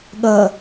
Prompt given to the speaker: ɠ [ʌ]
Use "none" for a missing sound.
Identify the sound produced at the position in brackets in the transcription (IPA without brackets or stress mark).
ʌ